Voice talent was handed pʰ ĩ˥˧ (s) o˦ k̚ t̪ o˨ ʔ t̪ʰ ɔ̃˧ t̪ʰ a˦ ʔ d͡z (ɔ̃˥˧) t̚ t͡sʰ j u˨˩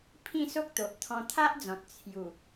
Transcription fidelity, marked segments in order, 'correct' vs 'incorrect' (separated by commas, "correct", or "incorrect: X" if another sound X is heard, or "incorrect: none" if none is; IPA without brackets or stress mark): correct, incorrect: ɔ̃˨